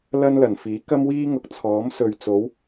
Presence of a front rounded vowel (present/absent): absent